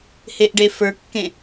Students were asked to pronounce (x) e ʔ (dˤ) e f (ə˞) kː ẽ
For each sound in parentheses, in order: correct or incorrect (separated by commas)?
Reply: incorrect, incorrect, correct